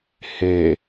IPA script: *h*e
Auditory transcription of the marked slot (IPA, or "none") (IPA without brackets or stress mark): h